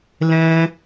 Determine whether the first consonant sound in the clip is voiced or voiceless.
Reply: voiced